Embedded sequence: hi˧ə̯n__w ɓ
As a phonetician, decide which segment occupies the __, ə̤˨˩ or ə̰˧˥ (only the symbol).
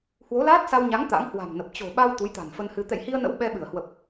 ə̰˧˥